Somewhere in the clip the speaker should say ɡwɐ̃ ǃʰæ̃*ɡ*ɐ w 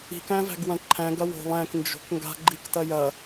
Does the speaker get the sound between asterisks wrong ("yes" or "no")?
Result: no